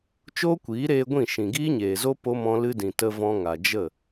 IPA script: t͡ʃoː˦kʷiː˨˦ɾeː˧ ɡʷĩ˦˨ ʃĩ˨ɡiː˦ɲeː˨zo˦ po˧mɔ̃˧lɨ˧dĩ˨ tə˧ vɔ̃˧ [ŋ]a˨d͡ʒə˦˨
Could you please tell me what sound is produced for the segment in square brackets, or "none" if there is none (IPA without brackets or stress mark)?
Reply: ŋ